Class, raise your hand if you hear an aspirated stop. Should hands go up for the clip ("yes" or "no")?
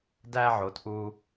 no